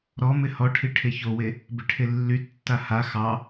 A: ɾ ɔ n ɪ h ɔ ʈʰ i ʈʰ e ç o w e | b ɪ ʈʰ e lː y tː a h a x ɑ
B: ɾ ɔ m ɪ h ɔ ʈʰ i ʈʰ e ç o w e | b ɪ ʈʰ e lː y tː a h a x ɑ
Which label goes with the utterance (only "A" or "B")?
B